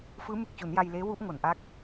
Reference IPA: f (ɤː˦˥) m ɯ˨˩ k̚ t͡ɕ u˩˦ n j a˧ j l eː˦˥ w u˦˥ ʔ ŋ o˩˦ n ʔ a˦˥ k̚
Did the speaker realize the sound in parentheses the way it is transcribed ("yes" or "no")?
no